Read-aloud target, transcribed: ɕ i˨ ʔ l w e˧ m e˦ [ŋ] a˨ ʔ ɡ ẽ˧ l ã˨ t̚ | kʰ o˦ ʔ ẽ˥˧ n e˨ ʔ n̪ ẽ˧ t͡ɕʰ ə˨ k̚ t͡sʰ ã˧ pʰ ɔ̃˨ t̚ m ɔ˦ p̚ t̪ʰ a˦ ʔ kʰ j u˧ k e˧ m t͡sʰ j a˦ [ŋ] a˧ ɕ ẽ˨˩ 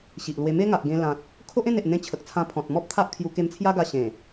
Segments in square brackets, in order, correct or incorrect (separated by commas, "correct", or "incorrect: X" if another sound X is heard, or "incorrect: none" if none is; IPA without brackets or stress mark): correct, incorrect: ɡ